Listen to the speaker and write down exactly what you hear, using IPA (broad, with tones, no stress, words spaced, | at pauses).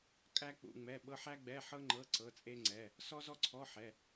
kʼæ˥k͡pṵ˧˥˧ŋ͡mɛ˧˥˧ɓɤ˥ ħæ˥ɡ͡bɛ˧˥˧ħɤ˥ŋ͡ǃɤ˧˥˧ ǀɤ˧˥˧t͡sʼe˥ŋ͡ǀɛ˧˥˧ | sɔ˥zɔ˥ǀʰɔ˧˥˧ ħɛ˧˥˧